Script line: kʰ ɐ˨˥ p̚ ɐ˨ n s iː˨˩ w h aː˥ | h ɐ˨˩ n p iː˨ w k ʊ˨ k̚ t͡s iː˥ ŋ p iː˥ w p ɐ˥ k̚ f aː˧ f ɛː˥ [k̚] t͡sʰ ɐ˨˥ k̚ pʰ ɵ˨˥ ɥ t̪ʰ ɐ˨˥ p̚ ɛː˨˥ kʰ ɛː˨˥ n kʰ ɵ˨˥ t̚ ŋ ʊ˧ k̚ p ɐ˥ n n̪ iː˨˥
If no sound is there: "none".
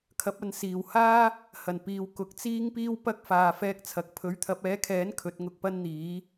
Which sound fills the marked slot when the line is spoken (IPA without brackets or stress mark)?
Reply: k̚